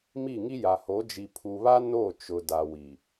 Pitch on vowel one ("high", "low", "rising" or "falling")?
falling